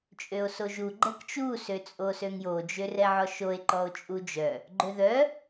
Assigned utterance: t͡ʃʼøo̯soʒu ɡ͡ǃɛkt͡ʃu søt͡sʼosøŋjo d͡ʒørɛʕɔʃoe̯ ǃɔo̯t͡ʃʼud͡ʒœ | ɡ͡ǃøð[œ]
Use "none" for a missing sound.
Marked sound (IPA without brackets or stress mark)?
œ